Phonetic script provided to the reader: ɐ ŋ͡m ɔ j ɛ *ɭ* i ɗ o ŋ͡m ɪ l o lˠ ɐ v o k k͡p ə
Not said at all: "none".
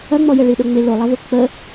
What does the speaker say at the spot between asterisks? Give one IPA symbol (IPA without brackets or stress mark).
ɭ